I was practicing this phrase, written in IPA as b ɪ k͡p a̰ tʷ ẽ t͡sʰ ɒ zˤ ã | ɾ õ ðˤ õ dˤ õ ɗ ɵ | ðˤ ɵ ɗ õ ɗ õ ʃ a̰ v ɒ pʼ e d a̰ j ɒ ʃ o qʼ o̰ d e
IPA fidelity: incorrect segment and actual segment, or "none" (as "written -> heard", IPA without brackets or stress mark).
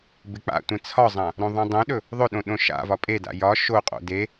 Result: none